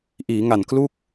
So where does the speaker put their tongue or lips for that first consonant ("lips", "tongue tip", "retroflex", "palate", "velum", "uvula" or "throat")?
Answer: throat